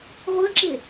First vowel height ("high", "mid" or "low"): mid